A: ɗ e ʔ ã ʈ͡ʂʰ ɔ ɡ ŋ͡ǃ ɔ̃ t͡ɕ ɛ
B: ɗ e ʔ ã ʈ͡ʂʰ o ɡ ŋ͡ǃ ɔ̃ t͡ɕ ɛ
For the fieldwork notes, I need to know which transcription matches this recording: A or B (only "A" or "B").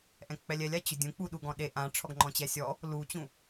A